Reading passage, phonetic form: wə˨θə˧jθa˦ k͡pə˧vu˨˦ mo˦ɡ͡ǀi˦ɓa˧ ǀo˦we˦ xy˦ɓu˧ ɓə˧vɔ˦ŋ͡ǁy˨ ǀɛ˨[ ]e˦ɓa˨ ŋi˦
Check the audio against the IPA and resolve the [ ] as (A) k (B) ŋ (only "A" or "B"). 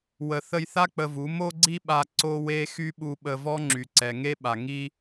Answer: B